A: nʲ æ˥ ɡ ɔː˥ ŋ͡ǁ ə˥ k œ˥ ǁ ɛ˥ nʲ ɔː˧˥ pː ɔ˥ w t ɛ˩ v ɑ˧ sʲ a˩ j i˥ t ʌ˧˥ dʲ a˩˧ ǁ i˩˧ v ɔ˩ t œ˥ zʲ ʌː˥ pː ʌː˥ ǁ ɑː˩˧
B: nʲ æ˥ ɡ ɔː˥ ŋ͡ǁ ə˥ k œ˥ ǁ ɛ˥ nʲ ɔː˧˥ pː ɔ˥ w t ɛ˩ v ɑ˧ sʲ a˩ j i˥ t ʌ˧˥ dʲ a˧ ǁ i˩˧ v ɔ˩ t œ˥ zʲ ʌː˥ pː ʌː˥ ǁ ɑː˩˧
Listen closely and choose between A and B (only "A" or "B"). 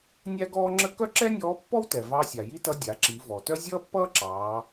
A